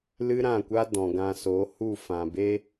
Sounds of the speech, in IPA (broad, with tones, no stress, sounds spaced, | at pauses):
l ɨ˦ ɾ ã˦˨ kʷ a˦ d ɔ̃˨ ɡ ã˨ s o˨˦ h u˦˨ f ã˨ b e˦